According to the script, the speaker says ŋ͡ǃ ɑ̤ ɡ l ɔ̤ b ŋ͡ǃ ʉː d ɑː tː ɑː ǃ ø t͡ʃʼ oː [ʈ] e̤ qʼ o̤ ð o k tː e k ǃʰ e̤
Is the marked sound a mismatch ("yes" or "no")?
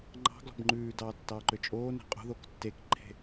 yes